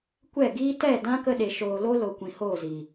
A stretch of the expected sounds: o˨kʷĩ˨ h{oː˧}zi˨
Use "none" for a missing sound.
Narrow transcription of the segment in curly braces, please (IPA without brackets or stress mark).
oː˦˨